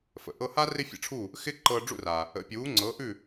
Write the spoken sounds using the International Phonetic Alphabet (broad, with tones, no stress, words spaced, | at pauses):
fə̰˩ʔɤ˧ha˥ rɪ˥fʲə̰˧ʈ͡ʂʰuː˥˩ | xɪ˥ ǃɤː˧ɖ͡ʐṵ˥˩raː˩ | ə̰˩˥pʲuː˩˥ ŋ͡ǀɤː˩˥ʔʉː˥˩